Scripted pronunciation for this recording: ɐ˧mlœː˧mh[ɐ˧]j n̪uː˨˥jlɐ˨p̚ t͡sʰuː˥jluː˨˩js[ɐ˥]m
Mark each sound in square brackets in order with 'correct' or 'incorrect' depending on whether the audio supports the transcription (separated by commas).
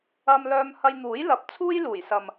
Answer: correct, incorrect